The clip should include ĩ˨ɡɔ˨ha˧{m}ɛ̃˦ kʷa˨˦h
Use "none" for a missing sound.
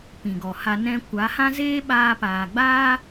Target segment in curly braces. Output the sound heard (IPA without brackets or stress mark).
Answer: n